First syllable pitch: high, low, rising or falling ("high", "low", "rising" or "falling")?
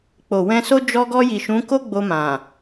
low